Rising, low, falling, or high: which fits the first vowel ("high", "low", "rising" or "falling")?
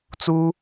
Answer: high